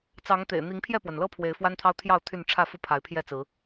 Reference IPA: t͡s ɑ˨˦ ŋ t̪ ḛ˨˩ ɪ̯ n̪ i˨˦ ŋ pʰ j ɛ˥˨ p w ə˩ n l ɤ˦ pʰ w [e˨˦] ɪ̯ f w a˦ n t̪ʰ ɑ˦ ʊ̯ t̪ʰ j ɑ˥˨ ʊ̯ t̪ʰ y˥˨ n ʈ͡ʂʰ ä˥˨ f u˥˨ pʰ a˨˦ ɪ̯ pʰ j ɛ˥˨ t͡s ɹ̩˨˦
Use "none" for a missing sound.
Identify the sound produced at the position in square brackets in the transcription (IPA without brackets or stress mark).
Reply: e˨˦